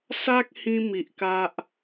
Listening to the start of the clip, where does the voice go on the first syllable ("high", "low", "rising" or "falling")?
high